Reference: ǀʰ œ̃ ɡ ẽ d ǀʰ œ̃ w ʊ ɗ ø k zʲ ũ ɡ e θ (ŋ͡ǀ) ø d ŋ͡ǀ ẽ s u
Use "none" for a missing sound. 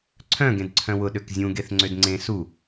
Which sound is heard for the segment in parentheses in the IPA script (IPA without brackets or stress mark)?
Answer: ŋ͡ǀ